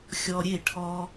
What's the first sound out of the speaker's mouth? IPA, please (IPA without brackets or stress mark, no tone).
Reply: xʲ